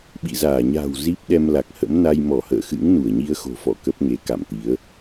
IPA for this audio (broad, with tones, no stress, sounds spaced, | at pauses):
ɓ ḭ˧˨ z aː˧˩ ɲ a̤ː˨˩ w z i˦˥ p̚ ɗ ɛ˧ m l a˨˩ k̚ h ə̰˧˥ m n a˧ j m ɔ˧˩ h ə̰ː˧˨ x ɨ̰˧˥ ŋ n u˧˩ ə̯ ɲ i˧ ə̯ x o̤˨˩ f ɔ̰˧˨ k ə˦˥ p̚ ŋ e˨˦ k a̰˧˨ m t̪ i˨˦ ə̯